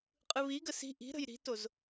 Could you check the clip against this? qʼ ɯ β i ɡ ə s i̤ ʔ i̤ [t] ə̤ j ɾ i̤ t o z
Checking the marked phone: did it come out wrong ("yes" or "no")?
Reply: yes